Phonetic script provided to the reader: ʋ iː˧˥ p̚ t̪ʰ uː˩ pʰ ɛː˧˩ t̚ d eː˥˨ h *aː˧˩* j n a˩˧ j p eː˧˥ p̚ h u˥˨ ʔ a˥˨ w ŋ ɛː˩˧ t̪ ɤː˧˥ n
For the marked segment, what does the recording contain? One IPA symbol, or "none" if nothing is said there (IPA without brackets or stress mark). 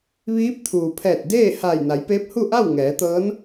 aː˧˩